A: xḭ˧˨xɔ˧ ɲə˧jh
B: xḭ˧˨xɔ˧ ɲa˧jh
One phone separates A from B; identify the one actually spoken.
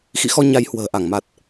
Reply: B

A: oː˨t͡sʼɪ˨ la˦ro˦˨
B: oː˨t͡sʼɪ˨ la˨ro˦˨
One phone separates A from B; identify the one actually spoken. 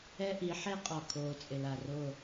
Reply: B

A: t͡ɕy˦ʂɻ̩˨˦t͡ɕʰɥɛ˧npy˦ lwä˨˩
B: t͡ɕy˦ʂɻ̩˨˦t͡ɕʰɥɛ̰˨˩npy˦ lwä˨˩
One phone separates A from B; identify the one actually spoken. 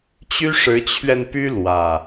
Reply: A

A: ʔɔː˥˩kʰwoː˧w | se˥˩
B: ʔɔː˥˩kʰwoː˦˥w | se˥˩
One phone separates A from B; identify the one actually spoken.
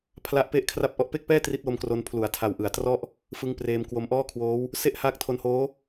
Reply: B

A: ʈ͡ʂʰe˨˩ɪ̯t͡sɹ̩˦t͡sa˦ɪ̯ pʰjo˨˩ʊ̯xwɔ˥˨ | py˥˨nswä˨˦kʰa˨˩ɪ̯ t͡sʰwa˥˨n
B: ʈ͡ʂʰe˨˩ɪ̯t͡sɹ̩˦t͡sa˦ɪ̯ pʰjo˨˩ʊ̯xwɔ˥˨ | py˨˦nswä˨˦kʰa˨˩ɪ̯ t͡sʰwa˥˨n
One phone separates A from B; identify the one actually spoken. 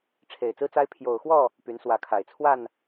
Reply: B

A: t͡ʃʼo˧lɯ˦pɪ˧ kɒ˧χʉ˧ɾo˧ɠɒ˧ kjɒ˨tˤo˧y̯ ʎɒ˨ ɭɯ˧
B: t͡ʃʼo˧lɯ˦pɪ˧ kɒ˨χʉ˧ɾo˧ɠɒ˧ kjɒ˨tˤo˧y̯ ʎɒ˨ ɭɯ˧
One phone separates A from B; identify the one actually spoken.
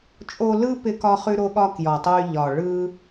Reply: A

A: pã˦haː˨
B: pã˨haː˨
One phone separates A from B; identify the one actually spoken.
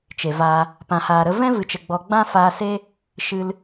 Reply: B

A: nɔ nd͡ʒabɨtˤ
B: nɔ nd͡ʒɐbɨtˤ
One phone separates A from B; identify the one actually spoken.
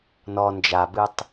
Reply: A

